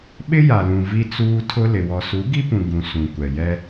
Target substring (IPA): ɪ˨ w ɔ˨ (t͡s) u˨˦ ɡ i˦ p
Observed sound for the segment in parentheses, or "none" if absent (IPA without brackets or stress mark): s